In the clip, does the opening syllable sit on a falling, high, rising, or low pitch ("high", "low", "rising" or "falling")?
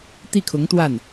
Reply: falling